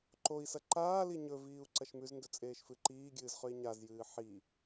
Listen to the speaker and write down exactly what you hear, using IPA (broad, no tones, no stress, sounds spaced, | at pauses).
ǃ o i̯ s ɐ ǃ aː l i ɲ ɵ v iː u̯ ǀ ɐ ʃ m ʉ z n d ɵ t͡sʼ eː ʃ f ɨ ǃ iː ɡʲ ɨː z χ ʉ i̯ ɲ a z j ɨː ħ i